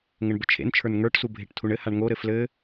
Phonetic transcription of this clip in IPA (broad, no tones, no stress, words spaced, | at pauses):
ŋəɳbət͡ʃʰḛnt͡ʃʰə˞n ŋə˞ʈsu bʱeʈtʰuɳɘhaɳ ŋoɾɘ flɘ